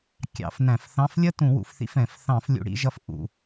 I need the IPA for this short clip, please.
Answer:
kʲɑ̰˧˩˧fnæ̃˧˩˧fθɑ̃˧˥˧f lʲə˥˧tũ˧˩˧wṵ˩˧fθḭ˨˥f ɛ̃˧˩˧f θɑ̃˧˩˧flʲṵ˩˧ɽḭ˩˧ʒʌ˨˥f ʔṵ˧˩˧

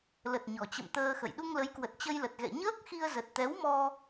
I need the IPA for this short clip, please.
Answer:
lə˨˩t̚ɲɔ˨˩t͡ɕə̰˧˨m t̪əː˧xə̰˧˨j ɗu˧ŋlə˨˦jkwə˨˩t̚ t͡ɕə˧jlə˨˩t̚ɣɛ̰˧˨ ɲəː˦˥k̚xi˧ə̯ zə˨˩t̚t̪ɛ˨˦wmɔ˧

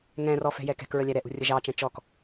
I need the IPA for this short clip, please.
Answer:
ŋɛ̃rɔ fɛ̤jɛkɛ̤kɹə lʲæɾɛʔṳ rʲəʒɑt͡ʃɛ̃ t͡ʃɔk

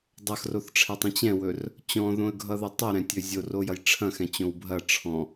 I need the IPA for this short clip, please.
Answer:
dˤɐxroθʈ͡ʂʰɛtˤɛ̃ t͡ɕɛ̃wɵr | t͡ɕɔ̃ðõə̯ɡʱʌðʌ tˤʌɾɛ̃tʲɵ zʲorojɐj ʈ͡ʂʰɐ̃xɛ̃t͡ɕõw bʱɐ ʈ͡ʂʰɔ̃

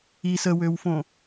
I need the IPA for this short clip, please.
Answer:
i səwøwfõ

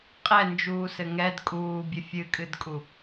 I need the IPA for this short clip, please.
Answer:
qʼɛnd͡ʒuːsɘ ŋɛd kʼuːbʲɘ fʲɨkʼɨdkʼu

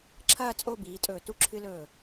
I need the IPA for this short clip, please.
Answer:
ǁʰɐː˥˧ t͡sʼo˥˧biː˩˧tʼɵː˧˩ tu˧ǁʰɨ˧lɵː˧˩

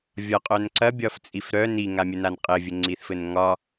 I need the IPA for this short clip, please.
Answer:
vʲɒqʼœn ǀɐbʲɒft͡sʼif ɾœ niŋamʲənan qʼɘvʲɘŋ͡ǀiθfɘn ŋɒ

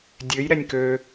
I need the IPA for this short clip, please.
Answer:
dʲøj ɾɛnʲkø

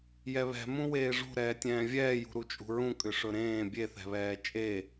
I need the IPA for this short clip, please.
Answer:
jɛβɛ̤ mũweːʐṳ ɾɛːtʲɛ̃ːvʲɛːjṳ ɾut͡ʃʼṳɹũ kʼʏʂɵɾẽː bʲeθɛ̤βɛː t͡ʃʼe

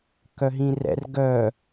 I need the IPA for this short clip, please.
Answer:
kœɦĩrɛ̰r ɡœ

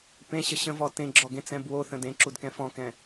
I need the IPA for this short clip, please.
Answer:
pẽɕə ɕə̃vɔ tẽɡ͡ǁɔɡẽt͡sɛ̃ bwoθə̃ dẽǁudkɛ̃ fɔ̃kɛ̃

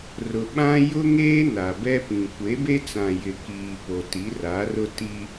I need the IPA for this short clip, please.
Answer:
rʊ˨ɓã˦ jʊ˦ŋeː˦ na˨ bɛ˦pĩ˨ kʷe˨˦be˦t͡sã˨ jɪ˨kiː˨ po˨ti˨˦ra˨˦rʊ˦ ti˦

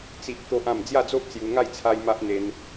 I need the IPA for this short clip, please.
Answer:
t͡si˦ʔ t̪o˦ʔã˥˧m d͡zja˥˧d͡zo˦ʔt͡sju˧ ŋa˥˧j t͡sʰa˦jma˦ʔ n̪e˧n

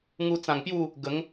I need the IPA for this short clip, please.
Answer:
ŋu˧t͡sã˨˩ŋpju˥˧ | ɡə˨˦ŋ

